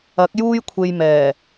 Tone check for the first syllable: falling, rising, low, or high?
rising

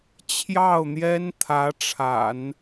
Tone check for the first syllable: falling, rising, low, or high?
falling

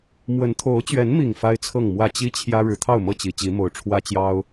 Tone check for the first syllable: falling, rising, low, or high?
rising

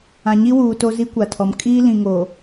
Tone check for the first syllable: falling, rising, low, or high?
low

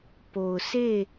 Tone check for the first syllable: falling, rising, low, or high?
low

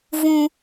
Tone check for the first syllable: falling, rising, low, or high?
high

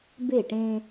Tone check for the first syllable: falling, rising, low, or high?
falling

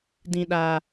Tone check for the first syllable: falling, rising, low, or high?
low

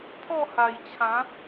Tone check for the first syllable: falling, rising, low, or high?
falling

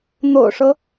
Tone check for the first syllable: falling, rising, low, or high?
low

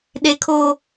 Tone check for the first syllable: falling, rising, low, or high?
high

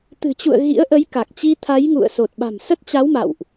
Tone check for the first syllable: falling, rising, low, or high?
low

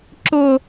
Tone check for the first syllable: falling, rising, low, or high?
high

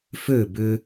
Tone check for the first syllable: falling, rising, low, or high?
falling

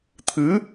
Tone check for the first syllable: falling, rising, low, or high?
rising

